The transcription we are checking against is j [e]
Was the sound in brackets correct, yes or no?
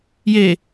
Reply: yes